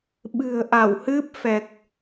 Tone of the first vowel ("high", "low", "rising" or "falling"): low